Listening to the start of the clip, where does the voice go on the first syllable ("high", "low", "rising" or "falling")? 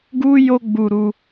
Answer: high